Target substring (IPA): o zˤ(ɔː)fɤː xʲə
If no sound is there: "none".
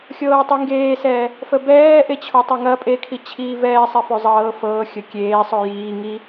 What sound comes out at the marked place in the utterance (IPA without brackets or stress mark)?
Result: ɤː